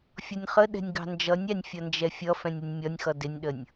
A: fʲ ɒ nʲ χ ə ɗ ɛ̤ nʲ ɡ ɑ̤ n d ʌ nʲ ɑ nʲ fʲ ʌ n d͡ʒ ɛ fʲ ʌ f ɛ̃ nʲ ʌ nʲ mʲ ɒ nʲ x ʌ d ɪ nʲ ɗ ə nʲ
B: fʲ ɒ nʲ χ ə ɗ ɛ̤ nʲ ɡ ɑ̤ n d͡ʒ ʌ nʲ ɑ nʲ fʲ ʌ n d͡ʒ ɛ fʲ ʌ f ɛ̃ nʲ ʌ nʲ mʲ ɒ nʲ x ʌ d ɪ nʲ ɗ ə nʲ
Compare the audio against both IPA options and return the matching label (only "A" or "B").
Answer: B